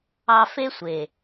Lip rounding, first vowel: unrounded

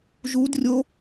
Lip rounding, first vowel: rounded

